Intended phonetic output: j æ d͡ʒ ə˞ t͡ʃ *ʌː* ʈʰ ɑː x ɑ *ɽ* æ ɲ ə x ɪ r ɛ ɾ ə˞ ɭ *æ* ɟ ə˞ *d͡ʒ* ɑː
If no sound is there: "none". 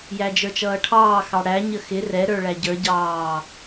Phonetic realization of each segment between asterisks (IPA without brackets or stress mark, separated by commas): ʌː, ɽ, æ, ɟ